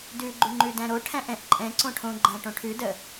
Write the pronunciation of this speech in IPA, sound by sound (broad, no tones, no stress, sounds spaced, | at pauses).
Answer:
d ʉ ɡ͡ǃ ʉ ŋ͡ǃ ʉ d æ̃ ɾ o ʈʰ æ̃ ʔ ɛ̃ ʔ ǃʼ ɛ̃ ǀ õ ʈʰ õ ɡ͡ǃ æ̃ ʈ õ ʈʰ ʉ d ə